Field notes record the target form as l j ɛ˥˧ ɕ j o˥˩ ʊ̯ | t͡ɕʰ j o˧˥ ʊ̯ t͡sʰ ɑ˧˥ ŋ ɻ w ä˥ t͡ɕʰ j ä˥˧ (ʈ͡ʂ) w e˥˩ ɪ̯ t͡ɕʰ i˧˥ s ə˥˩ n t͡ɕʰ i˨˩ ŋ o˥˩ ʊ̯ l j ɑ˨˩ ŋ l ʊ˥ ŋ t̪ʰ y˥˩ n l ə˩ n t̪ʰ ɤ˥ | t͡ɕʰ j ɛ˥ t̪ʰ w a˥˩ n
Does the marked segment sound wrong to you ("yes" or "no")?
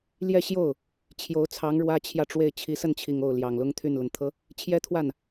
no